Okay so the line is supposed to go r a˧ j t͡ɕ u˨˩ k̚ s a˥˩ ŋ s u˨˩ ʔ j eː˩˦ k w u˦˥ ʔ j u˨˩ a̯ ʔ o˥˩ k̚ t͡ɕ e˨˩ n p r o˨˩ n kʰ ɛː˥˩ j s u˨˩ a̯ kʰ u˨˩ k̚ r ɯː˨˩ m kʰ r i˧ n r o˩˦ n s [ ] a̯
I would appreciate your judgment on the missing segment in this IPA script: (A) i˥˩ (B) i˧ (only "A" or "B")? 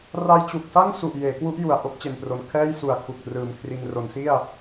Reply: A